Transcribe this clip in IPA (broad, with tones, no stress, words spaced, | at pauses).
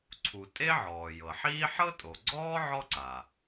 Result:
ǀʰu˩ tʼe˥ʕɔː˩jɤ˩ħiː˥ ħɤ˥tʼo˩ɡ͡ǀɔː˥ ʕɔ˥ǀa˩